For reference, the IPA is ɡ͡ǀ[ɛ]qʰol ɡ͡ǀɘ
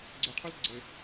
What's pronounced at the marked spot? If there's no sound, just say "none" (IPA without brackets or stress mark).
ɛ